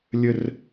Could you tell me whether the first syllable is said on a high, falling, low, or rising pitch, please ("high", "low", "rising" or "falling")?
high